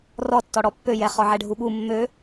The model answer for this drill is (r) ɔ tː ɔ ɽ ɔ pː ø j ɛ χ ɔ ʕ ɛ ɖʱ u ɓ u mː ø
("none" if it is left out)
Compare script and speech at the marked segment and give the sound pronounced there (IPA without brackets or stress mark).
r